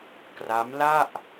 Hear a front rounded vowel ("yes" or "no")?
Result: no